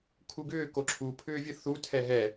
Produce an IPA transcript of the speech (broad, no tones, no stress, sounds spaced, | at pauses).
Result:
kʰ u ɡ ʏː k o ǁʰ u pʰ ʏː vʲ ɯ θ u tʰ ɛ ɦ ɛ